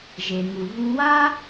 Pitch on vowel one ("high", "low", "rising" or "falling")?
low